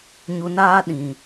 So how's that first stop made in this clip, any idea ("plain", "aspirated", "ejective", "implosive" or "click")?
implosive